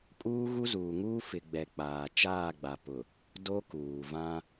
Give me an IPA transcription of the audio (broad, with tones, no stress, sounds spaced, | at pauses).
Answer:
kʼ uː˦ ɣ u˦ z uː˨ ŋ uː˦ f ɪ˨ ɡ͡b ɛ˨ k͡p aː˨ t͡ʃ aː˦˨ ɡ͡b a˨ p ʊ˨ | d o˦ k uː˨ v ã˦